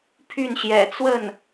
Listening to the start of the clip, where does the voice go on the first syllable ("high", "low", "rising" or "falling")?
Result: falling